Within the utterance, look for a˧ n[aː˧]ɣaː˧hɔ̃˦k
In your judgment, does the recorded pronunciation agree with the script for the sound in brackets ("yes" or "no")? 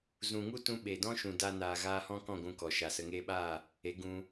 no